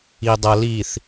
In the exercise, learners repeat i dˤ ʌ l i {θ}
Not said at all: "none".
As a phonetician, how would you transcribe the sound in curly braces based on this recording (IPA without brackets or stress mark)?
θ